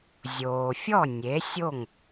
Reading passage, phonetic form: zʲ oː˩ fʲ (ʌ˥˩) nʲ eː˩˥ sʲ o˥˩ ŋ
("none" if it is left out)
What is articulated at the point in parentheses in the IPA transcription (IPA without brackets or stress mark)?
ɔ˥˩